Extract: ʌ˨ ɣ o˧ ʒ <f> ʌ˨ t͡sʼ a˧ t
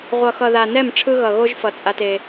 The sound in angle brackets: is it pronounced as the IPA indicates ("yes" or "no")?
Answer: yes